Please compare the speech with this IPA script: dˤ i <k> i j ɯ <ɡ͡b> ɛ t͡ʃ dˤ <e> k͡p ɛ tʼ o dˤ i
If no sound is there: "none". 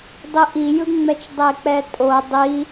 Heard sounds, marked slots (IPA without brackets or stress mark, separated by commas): ʔ, ŋ͡m, e